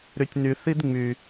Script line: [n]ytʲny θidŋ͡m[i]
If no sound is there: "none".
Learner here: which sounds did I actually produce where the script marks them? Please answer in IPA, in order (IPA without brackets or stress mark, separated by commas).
ɾ, y